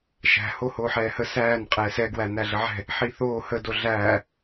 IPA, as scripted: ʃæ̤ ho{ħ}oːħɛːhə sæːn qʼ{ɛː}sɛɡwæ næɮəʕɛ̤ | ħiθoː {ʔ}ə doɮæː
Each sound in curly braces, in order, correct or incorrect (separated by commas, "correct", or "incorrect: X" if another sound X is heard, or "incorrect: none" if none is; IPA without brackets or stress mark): incorrect: h, correct, incorrect: h